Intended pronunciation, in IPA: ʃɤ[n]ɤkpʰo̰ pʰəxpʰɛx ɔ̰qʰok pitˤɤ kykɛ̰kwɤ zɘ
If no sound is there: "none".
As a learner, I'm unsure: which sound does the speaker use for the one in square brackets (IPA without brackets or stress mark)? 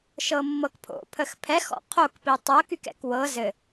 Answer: mː